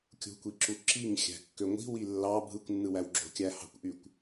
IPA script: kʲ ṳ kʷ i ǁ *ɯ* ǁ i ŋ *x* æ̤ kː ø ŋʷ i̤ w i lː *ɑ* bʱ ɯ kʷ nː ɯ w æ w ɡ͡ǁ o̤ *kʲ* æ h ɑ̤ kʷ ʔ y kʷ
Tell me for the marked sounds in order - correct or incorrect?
incorrect, incorrect, correct, correct

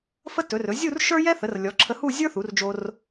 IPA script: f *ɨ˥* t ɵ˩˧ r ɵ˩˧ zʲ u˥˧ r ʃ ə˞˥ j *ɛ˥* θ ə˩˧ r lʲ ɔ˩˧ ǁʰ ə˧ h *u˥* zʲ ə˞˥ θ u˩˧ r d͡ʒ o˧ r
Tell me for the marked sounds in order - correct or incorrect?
incorrect, correct, incorrect

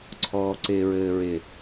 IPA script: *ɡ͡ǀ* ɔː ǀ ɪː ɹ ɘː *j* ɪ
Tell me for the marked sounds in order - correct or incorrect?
incorrect, incorrect

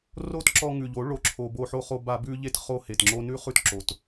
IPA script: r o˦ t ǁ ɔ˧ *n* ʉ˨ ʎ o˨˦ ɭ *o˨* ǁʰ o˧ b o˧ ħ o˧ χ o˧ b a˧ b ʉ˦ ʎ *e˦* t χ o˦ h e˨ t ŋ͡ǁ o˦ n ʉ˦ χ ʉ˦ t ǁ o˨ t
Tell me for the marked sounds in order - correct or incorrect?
incorrect, correct, correct

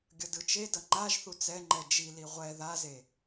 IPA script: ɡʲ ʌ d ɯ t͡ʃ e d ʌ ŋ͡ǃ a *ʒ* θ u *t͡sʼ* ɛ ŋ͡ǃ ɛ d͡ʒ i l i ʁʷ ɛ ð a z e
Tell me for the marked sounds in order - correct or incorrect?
correct, incorrect

